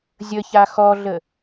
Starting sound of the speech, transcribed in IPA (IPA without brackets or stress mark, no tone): zʲ